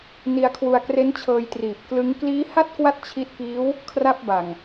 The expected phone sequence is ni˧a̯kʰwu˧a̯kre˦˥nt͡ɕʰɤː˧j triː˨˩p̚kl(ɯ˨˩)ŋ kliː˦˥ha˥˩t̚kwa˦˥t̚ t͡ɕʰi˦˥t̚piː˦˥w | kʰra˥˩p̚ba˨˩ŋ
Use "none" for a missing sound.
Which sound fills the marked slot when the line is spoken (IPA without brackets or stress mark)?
ɯ˦˥